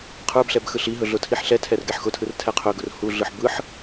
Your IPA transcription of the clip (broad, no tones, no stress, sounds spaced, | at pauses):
qʰ ə˞ b ɬ ɛ b x ɯ ɬ i ɦ ɵ ɮ ʊ tʰ i ħ ɬ ɛ tʰ ɛ r ɡ ɛ ħ x ʊ tʰ ɯ r tʰ ɛ qʰ ɵ ɡ ʊ r h u ɮ ɯ ħ b ɯ ħ